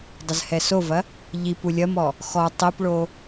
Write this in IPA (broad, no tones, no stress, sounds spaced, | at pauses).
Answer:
dˤ ə z h ɛ s o v ɐ | ʎ i p u lʲ ɐ m ɔ | x ɔ tˤ i p ɭ o